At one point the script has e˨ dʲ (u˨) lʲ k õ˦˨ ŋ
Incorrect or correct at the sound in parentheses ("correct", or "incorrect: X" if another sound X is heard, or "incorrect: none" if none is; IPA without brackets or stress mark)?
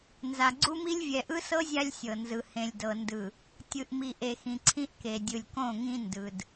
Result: incorrect: ɯ˨